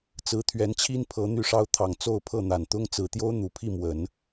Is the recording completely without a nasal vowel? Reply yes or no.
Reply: yes